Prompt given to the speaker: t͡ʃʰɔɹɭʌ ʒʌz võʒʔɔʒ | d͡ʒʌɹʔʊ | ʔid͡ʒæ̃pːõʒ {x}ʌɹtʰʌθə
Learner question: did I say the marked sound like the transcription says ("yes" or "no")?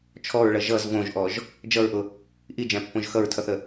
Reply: yes